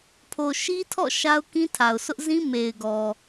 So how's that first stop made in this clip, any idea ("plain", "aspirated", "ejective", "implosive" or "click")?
aspirated